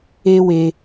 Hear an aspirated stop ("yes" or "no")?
no